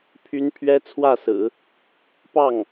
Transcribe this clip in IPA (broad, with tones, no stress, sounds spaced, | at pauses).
pʰ y˥ n pʰ ɥ ɛ˥ t͡sʰ w ä˥˩ s ɹ̩˨˩˦ | p ɑ˥˩ ŋ